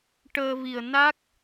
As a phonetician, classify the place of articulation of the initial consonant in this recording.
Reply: retroflex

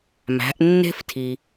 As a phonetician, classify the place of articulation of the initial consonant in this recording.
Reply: labial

